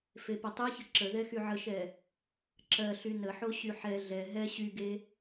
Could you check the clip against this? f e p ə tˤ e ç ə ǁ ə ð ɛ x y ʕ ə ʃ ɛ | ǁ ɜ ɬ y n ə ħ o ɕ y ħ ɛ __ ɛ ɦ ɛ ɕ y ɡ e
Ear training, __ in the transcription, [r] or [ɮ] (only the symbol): ɮ